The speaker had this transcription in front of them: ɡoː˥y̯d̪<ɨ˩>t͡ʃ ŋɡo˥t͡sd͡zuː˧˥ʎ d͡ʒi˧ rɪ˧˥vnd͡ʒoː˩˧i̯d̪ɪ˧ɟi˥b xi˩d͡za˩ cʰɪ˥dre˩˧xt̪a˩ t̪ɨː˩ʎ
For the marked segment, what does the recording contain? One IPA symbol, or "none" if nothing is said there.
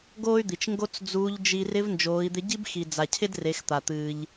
i˩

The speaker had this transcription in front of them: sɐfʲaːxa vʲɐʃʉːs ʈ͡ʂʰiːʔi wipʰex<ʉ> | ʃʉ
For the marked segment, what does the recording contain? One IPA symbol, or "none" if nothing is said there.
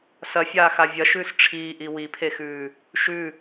ʉː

